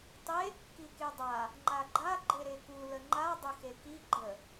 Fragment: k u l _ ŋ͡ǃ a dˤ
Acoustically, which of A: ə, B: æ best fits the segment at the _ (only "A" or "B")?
A